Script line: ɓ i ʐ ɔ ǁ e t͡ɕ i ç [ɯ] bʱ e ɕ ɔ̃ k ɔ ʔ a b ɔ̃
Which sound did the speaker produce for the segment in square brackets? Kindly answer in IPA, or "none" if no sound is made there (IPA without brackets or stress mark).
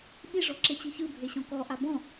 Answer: ɯ